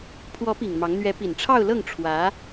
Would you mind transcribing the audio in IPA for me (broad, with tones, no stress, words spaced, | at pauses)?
pʰwɔ˧˥pi˨˩ŋ mɑ˧˥ŋ n̪ɥɛ˧˥ pi˨˩nʈ͡ʂʰɑ˥˧ʊ̯lɤ˥˩ŋ ʈ͡ʂʰwä˧˥